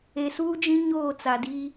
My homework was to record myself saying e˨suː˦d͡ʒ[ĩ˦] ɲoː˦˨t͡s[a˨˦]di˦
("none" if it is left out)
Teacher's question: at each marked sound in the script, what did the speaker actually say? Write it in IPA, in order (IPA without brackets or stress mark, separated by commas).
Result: ĩ˦, a˨